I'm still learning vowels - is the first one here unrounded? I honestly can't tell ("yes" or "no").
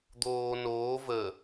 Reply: no